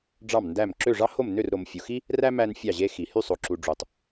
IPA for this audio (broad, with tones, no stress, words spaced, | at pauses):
ɖ͡ʐɑ˥˨mndæ˥˨m ǁø˥˨ʐɑ˥ho˥˨m nø˥˨rɾo˨mfʲu˨xi˥ | ræ˥ mæ˥nfʲɑ˥˨ʑe˥xi˨ hy˥˨sˤo˨ǁu˨ɖ͡ʐu˨tˤ